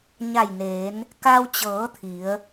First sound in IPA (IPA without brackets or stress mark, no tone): ɲ